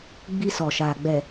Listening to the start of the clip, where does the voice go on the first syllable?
high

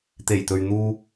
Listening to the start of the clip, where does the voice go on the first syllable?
low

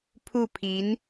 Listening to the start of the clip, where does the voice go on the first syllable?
falling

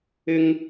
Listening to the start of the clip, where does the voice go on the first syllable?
high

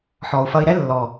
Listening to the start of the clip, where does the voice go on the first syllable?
low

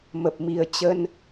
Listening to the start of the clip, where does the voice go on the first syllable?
low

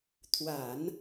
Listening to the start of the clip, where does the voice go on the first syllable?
low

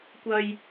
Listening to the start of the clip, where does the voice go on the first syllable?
high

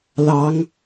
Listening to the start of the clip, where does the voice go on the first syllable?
rising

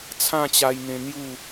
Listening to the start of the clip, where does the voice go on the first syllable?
falling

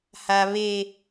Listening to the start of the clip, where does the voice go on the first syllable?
high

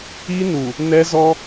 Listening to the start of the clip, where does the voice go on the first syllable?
high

